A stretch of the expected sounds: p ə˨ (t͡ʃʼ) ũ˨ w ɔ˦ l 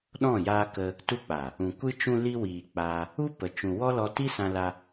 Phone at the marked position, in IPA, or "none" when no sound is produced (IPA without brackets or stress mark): t͡ʃ